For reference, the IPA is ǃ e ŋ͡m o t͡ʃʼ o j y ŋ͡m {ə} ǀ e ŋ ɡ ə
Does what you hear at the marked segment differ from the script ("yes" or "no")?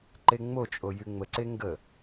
no